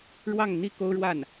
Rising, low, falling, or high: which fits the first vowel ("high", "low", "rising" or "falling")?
falling